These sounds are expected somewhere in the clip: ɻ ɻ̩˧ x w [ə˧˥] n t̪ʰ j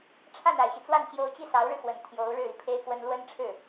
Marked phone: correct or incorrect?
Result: incorrect